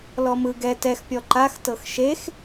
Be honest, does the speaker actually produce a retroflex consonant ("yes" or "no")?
no